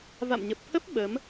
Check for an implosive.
present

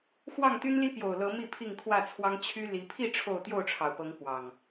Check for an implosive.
absent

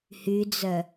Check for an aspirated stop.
absent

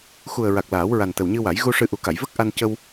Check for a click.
absent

